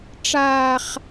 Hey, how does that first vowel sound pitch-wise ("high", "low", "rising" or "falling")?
high